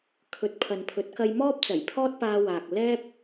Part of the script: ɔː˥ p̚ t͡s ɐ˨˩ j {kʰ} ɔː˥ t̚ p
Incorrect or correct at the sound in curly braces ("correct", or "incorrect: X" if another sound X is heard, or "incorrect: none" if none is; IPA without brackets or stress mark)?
incorrect: pʰ